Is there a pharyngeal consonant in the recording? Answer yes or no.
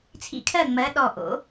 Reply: no